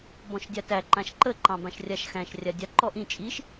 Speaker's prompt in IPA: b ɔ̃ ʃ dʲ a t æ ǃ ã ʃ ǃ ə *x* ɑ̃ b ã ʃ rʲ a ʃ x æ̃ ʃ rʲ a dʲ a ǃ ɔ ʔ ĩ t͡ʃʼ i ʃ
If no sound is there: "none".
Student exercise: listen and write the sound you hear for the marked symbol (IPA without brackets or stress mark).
ǃ